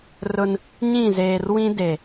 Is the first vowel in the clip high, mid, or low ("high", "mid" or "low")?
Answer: high